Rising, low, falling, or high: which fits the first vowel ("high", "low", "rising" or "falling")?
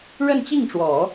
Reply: falling